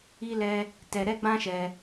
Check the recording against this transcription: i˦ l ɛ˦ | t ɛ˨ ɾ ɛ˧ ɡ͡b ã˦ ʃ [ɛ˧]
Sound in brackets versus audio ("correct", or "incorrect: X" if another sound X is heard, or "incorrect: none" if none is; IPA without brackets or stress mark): correct